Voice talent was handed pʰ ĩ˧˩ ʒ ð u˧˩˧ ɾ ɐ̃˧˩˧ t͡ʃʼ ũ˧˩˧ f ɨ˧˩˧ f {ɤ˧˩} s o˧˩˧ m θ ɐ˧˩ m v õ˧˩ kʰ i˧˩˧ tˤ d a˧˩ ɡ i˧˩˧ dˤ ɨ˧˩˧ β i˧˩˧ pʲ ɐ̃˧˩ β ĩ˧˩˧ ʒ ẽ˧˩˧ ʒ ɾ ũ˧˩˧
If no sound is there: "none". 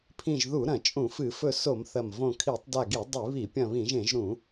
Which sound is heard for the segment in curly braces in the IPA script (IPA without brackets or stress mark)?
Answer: ɵ˧˩